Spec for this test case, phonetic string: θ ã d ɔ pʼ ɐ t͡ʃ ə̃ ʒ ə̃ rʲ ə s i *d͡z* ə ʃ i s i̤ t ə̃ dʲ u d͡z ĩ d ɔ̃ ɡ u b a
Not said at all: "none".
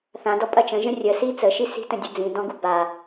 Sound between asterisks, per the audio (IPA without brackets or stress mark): t͡s